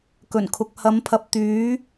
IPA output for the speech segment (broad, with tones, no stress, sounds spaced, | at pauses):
k ɵ˨˩ n kʰ ʊ˨ k̚ h ɐ˨˥ m pʰ ɐ˨ p̚ t̪ yː˨˥